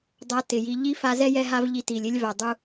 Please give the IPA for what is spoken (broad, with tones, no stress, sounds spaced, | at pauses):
dˤ a˧ t ɪ˨ j i˧ ʎ i˦ f a˧ z ɛ˦ j ɛ˧ ɦ a˦ v ʎ i˧ t i˨ lʲ ɪ˦ lʲ v a˨ dˤ u˧